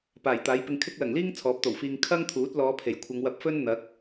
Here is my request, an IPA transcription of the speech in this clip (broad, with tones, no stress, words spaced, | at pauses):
paː˨˩jt̪aː˨˥jpɪ˧ŋkʰɪ˥k̚ lɐ˨˩ŋliː˥ŋ t͡sʰɔː˨˥p̚t̪o˨˩wfiː˧ŋ kʰɐ˥ŋt̪ʰuː˨˥t̚ lɔː˨˧pʰe˨˩jkʷʰɐ˨˧ŋ wɐ˧p̚fɵ˥nn̪ɐ˨˥k̚